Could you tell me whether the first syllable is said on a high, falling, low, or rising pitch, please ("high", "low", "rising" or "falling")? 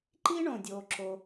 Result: high